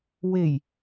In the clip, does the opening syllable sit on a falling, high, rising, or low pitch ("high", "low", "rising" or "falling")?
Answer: low